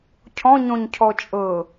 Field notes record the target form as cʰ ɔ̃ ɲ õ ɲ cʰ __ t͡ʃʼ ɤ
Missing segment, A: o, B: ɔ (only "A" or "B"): B